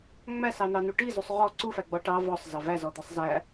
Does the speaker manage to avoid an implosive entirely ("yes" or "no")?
yes